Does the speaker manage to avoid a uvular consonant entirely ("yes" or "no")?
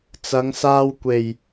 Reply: yes